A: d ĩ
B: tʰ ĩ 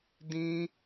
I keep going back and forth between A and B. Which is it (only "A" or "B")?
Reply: A